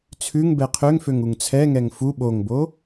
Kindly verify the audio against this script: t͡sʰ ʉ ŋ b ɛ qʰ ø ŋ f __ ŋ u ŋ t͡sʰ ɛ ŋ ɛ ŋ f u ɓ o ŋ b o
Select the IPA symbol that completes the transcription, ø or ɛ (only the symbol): ø